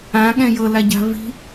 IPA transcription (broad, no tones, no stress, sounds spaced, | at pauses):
ã ɠ ɛ̃ j ɤ l a ɟ a̤ v i̤